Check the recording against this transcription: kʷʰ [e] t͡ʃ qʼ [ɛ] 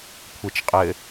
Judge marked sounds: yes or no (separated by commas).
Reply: yes, no